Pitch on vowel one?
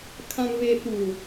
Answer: low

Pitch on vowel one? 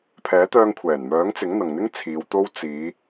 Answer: rising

